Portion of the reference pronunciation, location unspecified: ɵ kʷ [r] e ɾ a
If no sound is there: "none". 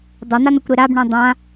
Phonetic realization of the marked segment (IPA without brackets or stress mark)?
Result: ɾ